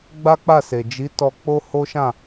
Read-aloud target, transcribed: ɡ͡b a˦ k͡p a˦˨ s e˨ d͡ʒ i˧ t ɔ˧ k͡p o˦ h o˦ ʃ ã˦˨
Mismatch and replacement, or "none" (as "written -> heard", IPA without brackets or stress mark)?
i˧ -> i˨˦